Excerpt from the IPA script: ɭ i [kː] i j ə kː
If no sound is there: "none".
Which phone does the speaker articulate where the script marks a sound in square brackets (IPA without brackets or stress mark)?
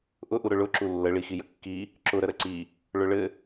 x